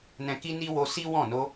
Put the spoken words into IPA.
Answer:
nɛ̃˧ki˦ ni˦ wo˧si˦wɔ̃˦˨ no˧

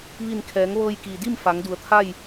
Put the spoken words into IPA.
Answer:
ʋi˧˩nkʰɛː˩˧ŋ ʋɤː˧jkiː˩di˥˨m fa˩˧ŋdu˩˧ə̯t̪ʰa˥˨j

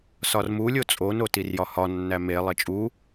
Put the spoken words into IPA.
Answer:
sɒrmu lʲot͡sʼo notirjɒhɒ nːæme lˠet͡ʃʼu

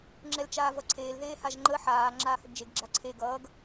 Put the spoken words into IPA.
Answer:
ŋ͡ǁɛlt͡ʃaːvʌǀʰeːl ðeːhaʒŋ͡ǃə ħaː ŋ͡ǁaːhəɡd͡ʒeɡ ɡ͡ǁaǀʰe ɡʌːɡ

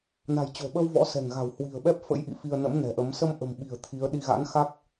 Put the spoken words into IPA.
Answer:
na̤˨˩jt͡ɕo̤˨˩ɓə˧w vɔ̰˧˥sɛ̤˨˩ŋɣa̤˨˩w hwi̤˨˩ə̯ɓɛ˦˥p̚fə̰˧˥j ʔḭ˧˨fi˧ə̯nə̰˧˥m nɛ̤˨˩ʔə˨˦m sə˧m ʔə̤˨˩mɓi̤˨˩ə̯ t̪ʰi˨˦ə̯ɗi˧ ɣa̰˧˥nxa˦˥k̚

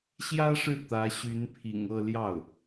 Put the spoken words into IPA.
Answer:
ɕjä˥ʂɻ̩˥˩ t̪ä˧˥ɕy˧˥npʰḭ˨˩ŋ ɤ˥˧ ljɑ˥˩ʊ̯

